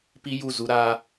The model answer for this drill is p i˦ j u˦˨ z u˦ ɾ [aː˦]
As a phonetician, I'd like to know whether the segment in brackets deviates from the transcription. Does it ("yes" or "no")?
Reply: no